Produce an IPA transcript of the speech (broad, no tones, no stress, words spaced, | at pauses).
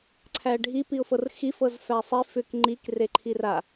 ǀʰæɖʱi piʊ̯fɤrxi fɤzfæsˤi fʏk ŋ͡ǃik reǃʰira